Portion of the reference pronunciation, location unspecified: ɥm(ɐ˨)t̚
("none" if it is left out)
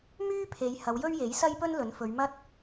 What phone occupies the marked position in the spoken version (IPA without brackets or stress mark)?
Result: ɐ˥